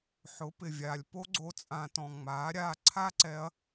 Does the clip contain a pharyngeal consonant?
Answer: yes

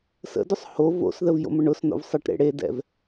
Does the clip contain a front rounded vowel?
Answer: no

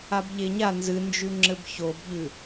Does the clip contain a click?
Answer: yes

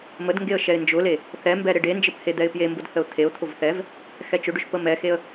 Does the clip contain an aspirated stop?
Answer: yes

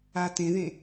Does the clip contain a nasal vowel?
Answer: yes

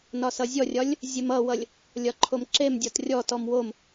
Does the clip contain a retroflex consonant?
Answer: no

